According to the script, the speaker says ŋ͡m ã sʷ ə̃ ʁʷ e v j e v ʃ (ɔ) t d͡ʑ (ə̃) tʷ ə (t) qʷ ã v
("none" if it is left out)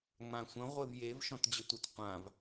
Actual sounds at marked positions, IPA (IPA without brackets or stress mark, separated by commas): ɔ̃, ə, t